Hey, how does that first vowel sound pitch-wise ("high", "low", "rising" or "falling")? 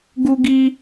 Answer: high